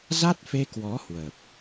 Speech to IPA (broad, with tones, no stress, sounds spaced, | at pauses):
z a˦˥ t̚ f e˧ k w ɔ˨˦ h w ə˨˩ p̚